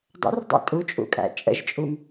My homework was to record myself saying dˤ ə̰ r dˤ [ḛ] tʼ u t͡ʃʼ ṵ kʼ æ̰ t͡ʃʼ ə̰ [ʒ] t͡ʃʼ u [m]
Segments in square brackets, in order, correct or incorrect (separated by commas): correct, correct, correct